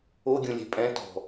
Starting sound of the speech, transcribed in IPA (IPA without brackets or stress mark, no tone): o